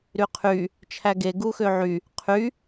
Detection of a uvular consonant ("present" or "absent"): present